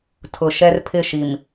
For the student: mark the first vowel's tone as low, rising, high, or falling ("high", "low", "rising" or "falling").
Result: low